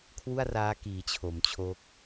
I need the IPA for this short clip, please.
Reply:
kʰ w u˥˩ a̯ r aː˦˥ k iː˩˦ t͡ɕʰ o˩˦ m t͡ɕʰ o˦˥ k̚

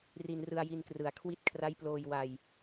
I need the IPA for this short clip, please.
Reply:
r i˧ n r ɯ˧ a̯ j i˧ n k r ɯ˩˦ a̯ kʰ w i˦˥ t̚ kʰ r a˦˥ j p l oː˧ j w a˧ j

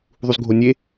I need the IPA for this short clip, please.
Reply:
ðˤ u z ɡʱ o nʲ e

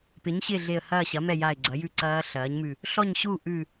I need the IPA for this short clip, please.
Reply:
p ɪ˩˥ ɲ ɕ ɪː˥˨ ɮ e˧˩ ə̯ h ɐː˥˨ ɕ ɐ˩˥ m ɛ˥˨ j a˧˩ ɪ̯ ɡ͡ǀ ɐ˩˥ j ʉ˦˥ ǀ ɐː˦˥ ɬ ɐː˩˥ ɲ m ʉ˧˩ | ɬ ɔ˥˨ ɲ ɕ u˥˨ ʔ ʉ˧˩

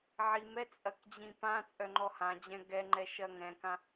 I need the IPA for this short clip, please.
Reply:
ʕ i m ɛ t͡sʼ ɐ k d͡ʑ ĩ p ã t͡sʼ œ ŋ͡ǃ ɔ h ã d͡ʑ ɛ̃ ɡ ɛ ŋ͡ǃ ɛ ʃ ɐ ŋ ɛ̃ k ã

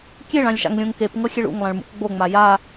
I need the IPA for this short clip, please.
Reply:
kʲ e ɭ ã lʲ ʃ a̰ ŋ lʲ õ ŋ k e p ŋ ɤ xʲ e ɭ ṵ ŋ lˠ ã ɭ m ṵ k ɡ͡b o ŋ͡m a j a

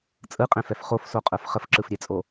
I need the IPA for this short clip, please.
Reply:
t͡sʼ ɯ qʼ ɛ̃ f ɛ f χ o f s o qʼ ə˞ f χ ə f ǁ ɯ f ɾʲ e t͡sʼ o

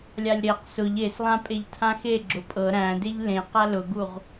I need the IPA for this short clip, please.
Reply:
lʲ a lʲ ɾ e q s ʊ ʎ e s lˠ ã pʼ e ʎ tʰ ã x e ɡ͡ǁ ʊ pʼ ɤ ɾ æ̃ d e ʎ l ẽ q a l ʊ ɡ u ʁ

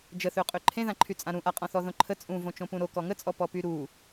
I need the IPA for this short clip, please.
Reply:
d͡ʒ ə θ ø qʼ ø ǃʰ ẽ ð ã ǃʰ y t͡sʼ ã ɾ ũ ʔ a qʼ ɔ̃ θ ɔ ð õ ǃʰ ə t͡sʼ ũ v õ t͡ʃ õ p ũ ɾ o k ɔ ŋ ə t͡sʼ ɔ p ɔ p y ɾ u

